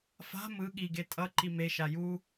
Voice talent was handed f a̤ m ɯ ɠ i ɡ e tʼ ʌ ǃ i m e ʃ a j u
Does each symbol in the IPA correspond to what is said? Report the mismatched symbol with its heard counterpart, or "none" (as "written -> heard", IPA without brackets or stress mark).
none